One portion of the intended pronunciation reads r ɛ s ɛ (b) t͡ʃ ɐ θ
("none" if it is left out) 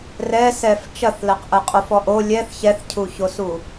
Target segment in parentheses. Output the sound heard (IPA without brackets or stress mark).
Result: f